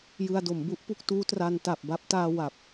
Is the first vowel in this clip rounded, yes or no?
no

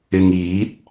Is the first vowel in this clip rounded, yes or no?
no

